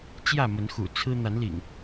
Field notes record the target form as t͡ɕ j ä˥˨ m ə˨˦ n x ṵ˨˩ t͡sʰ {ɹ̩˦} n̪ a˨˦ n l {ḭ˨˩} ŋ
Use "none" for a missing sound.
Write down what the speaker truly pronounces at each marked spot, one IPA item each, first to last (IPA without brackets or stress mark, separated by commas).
ɹ̩˦, ḭ˨˩